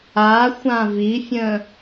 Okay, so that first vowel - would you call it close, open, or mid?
open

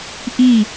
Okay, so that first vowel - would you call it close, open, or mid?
close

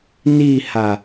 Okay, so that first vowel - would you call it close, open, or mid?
close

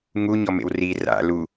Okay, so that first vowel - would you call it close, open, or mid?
close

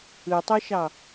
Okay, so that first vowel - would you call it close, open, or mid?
close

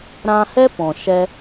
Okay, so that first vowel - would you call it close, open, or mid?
open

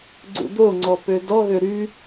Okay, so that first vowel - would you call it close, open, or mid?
close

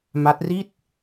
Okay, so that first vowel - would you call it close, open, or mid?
open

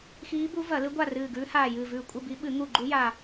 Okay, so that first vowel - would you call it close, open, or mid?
close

